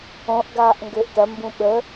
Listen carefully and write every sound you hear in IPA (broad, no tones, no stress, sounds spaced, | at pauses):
õ ʔ ɡ aː ʔ ŋ ɡ ø ʔ t ɐ m b ũ ɓ ə